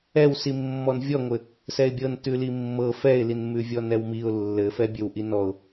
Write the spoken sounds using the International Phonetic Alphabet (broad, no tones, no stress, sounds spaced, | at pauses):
ɛ w s i mː ɔ n vʲ ɔ ŋʷ ɘ | s ɛ ɪ̯ bʲ ɤ n t ʉ l i mː ɤ f ɛ ɪ̯ l i n m ʉ vʲ ɔ n ɛ w m i ʊ̯ lː ɘ f ɛ bʲ ɘ w ʔ i n ɔ ʊ̯